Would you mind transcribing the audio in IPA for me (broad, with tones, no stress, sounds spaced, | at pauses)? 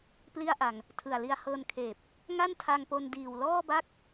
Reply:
p l i˥˩ a̯ ʔ a˧ ŋ | tʰ ɯ˨˩ a̯ l i˧ a̯ h ɤː˧ n kʰ eː˨˩ p̚ | ŋ a˥˩ n tʰ a˧ ŋ p o˧ n d iː˨˩ w l ɔː˥˩ b a˥˩ k̚